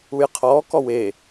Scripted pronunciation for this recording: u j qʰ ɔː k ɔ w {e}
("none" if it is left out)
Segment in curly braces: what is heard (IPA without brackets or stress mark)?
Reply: e